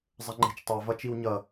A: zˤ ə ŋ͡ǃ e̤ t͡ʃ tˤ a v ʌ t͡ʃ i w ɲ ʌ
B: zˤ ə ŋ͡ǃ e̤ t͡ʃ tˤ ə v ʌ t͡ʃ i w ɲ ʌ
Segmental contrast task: A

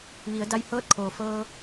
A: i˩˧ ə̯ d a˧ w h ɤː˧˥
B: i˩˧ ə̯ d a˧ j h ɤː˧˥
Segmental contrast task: B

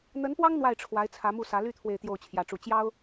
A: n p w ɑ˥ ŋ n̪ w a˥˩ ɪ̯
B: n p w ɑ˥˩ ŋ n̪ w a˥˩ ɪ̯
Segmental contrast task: A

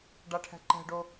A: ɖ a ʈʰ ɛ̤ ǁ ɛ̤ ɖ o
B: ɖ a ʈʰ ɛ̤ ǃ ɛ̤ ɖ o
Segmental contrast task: B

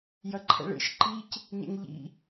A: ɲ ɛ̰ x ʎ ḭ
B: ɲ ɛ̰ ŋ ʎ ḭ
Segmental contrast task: B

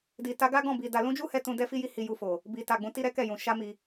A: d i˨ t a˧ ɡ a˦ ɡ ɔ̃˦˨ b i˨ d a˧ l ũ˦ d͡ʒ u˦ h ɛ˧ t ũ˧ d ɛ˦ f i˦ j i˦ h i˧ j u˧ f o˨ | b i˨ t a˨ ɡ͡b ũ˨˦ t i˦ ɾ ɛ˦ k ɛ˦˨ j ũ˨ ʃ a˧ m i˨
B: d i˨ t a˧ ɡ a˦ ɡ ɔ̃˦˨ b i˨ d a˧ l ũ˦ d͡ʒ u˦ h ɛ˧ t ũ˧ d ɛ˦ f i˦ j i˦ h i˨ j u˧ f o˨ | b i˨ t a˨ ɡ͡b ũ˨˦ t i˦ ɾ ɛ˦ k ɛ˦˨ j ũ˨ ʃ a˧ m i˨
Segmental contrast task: A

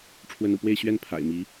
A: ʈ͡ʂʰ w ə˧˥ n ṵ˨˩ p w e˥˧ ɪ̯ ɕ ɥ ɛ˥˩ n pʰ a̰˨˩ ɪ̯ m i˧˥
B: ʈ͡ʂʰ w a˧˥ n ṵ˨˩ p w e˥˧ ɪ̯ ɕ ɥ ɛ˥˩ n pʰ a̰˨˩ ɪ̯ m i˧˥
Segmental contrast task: A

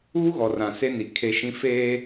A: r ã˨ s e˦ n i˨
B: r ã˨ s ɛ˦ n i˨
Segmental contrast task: A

